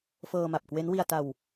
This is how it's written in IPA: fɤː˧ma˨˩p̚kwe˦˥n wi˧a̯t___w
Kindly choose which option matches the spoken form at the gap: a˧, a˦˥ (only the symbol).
a˧